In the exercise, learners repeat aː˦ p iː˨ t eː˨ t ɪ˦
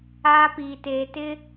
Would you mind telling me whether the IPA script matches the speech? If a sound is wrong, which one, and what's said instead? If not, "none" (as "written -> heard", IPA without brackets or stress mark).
none